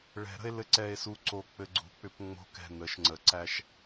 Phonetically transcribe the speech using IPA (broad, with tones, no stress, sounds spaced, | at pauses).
ɭ ɛ̤˨˩˦ ɾ ə̤˧ e̯ l ɘ˧ ǀ ɛ˧ e̯ s u˧ ǀ o˧˩ k͡p ɘ˧ ɡ͡ǀ ṳ˨˩˦ k͡p ʏ˨˩˦ p ŋ͡m o̤˧ k ɛ̤˧˩ n ə˨˩˦ ʃ ŋ͡ǀ ə˨˩˦ ǀ æ˧ ʃ